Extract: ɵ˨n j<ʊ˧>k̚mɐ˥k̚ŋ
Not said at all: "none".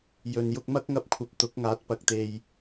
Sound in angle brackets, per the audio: ʊ˧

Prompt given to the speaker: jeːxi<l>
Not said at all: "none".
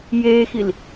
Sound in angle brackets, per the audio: l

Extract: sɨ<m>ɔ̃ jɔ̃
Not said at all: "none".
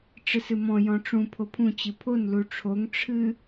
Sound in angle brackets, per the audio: m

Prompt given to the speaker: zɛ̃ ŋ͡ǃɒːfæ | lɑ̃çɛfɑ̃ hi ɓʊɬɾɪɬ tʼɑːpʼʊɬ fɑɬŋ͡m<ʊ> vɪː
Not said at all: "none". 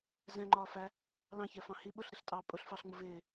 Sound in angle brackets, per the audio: ʊ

